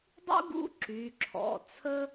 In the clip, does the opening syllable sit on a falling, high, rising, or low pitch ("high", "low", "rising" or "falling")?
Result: high